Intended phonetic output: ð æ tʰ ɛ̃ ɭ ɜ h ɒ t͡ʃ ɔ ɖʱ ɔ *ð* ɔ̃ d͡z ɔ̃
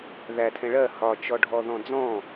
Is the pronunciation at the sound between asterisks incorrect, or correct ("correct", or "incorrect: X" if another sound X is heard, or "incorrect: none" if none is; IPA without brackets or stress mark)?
correct